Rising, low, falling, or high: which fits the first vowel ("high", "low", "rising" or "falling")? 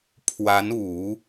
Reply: rising